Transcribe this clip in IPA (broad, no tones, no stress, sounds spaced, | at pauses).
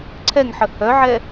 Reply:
ǀʰ ɛ ŋ ħ ə h œ ʕ ɛ